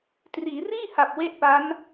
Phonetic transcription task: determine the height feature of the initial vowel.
high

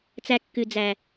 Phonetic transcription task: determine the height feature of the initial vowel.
low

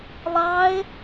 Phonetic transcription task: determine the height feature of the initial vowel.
low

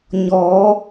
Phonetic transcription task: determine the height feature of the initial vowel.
mid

